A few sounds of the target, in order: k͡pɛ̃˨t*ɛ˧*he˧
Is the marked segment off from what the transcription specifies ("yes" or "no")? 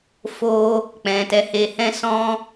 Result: yes